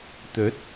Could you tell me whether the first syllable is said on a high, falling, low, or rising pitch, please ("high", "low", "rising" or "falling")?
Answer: rising